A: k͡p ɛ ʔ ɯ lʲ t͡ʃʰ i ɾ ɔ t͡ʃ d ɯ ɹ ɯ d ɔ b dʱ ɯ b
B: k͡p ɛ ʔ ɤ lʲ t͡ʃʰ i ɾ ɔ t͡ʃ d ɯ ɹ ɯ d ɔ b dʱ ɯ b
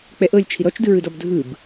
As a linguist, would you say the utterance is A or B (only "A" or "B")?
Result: B